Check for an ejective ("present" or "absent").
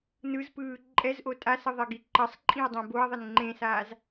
present